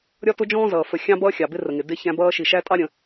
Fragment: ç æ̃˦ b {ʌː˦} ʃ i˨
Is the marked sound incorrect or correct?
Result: correct